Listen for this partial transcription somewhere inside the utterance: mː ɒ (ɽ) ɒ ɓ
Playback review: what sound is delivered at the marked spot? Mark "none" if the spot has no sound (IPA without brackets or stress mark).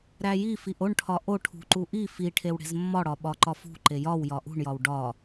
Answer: ɽ